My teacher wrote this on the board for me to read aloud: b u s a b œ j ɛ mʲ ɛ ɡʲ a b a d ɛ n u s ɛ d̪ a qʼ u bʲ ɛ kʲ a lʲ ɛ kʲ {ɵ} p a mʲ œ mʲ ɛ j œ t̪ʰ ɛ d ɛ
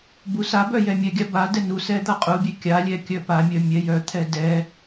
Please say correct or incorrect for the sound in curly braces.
incorrect